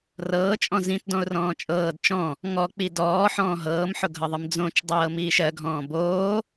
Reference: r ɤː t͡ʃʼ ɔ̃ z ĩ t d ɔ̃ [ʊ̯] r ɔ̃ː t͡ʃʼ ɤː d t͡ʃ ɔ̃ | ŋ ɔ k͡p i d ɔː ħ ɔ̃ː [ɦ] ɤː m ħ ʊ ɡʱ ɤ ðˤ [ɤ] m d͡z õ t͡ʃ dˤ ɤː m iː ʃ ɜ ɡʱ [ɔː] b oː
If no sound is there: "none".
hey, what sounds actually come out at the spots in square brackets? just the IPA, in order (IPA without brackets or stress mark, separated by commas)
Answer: ʊ̯, ɦ, ɯ, ɔ̃ː